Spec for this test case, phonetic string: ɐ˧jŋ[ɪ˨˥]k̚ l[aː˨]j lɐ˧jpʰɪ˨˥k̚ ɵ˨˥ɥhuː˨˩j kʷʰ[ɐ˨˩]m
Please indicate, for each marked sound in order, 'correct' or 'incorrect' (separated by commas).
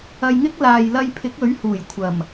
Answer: incorrect, correct, correct